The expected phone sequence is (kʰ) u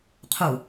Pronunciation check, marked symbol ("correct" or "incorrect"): incorrect